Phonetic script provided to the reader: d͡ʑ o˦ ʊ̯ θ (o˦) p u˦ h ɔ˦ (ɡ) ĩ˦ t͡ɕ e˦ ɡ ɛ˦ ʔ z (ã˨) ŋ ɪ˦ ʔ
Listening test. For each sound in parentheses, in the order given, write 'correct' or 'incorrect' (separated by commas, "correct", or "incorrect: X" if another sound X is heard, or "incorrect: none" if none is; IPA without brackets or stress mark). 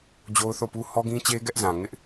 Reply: incorrect: o˦˨, correct, correct